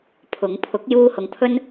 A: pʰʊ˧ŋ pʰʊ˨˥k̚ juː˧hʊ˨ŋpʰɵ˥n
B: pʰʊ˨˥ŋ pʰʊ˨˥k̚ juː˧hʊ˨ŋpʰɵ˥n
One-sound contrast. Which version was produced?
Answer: B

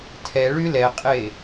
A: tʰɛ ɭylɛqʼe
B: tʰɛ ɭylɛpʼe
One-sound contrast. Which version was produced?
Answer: A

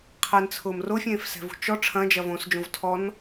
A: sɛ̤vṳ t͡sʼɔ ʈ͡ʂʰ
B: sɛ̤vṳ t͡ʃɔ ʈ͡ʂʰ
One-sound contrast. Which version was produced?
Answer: B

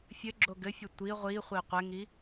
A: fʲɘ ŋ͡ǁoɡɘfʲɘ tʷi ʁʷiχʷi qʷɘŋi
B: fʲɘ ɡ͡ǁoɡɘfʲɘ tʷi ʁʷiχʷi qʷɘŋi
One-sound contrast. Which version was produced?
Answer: B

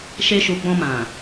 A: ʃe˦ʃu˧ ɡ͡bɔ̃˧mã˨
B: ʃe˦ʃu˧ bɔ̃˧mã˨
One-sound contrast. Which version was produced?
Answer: A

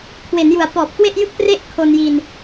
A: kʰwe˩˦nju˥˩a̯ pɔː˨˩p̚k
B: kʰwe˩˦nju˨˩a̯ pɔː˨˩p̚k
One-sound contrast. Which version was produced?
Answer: B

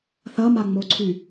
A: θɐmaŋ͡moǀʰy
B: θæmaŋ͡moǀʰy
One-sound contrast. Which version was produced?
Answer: A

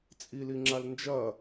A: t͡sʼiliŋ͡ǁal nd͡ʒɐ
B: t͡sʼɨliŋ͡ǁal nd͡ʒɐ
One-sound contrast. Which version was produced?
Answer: A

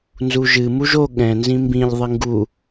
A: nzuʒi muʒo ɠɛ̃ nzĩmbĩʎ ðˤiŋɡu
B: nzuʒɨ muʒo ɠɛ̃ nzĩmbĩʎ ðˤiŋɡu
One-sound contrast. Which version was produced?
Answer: B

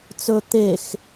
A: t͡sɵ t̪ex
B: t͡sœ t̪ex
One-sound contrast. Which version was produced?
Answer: A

